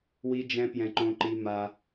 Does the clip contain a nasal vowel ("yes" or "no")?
yes